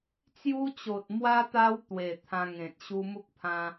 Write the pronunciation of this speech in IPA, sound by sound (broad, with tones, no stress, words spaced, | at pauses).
t͡sju˧t͡ɕo˨t̚mwa˧ t̪a˦wt̪we˨˩ t̪ʰã˧ŋẽ˨t̚ ɕu˧mu˦k̚pʰã˧